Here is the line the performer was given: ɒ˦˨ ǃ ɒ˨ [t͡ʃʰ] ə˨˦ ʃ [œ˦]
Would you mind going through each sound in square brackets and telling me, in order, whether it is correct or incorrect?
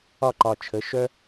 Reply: correct, correct

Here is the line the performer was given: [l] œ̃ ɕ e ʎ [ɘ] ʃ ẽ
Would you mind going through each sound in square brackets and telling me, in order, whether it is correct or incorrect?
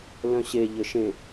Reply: correct, correct

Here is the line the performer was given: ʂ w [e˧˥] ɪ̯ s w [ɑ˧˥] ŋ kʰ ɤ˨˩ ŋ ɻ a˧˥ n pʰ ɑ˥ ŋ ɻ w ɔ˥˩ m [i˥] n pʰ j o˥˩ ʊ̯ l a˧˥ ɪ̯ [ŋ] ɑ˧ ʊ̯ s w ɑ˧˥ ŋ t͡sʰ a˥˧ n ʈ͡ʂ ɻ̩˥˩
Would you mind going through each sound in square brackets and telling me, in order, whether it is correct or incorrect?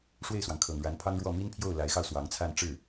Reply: incorrect, incorrect, correct, incorrect

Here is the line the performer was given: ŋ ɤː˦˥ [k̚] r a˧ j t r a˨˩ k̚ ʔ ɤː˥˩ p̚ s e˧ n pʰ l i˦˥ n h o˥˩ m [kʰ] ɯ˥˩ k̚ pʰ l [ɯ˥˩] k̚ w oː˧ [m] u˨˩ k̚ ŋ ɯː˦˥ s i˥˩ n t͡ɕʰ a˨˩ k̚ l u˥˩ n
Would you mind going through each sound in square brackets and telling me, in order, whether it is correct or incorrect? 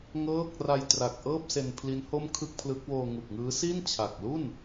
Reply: correct, correct, incorrect, incorrect

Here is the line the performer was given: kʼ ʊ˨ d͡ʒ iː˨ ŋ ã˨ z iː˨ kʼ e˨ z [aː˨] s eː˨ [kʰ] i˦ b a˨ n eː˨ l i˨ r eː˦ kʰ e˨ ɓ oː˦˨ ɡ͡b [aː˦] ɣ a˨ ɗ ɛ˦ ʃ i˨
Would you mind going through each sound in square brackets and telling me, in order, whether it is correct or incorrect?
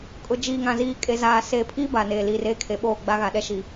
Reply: correct, incorrect, incorrect

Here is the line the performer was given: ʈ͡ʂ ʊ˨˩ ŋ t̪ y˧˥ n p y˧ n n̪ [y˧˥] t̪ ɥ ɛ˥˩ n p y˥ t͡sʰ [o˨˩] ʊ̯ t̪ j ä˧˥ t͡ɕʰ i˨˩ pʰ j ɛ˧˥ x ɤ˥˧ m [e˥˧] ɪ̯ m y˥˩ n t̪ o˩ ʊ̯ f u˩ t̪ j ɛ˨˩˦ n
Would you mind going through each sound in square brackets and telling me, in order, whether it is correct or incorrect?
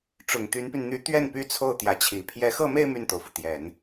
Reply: correct, incorrect, correct

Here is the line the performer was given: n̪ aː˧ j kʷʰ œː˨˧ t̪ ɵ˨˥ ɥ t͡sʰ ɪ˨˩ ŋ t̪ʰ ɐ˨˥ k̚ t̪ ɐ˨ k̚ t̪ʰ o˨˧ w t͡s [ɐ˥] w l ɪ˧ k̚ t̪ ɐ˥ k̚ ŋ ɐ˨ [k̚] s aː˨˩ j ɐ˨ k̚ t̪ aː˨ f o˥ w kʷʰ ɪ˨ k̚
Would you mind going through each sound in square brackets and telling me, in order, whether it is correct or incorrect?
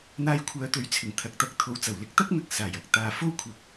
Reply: incorrect, correct

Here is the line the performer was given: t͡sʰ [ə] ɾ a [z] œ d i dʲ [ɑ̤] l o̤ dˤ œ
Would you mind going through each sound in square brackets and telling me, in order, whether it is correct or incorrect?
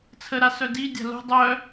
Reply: correct, incorrect, incorrect

